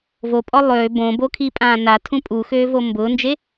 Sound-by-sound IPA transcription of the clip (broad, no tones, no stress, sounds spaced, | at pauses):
v o pʼ ɔ lˠ øː b õ b o kʰ i pʼ ãː n a tʰ ũ pʼ u x øː v o m b ʊː n d͡ʒ e